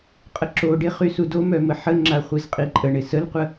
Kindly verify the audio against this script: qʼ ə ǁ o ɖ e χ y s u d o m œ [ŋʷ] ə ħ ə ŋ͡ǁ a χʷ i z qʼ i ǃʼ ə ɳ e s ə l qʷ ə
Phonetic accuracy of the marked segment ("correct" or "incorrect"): incorrect